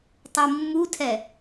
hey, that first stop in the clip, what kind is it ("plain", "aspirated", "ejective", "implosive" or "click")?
plain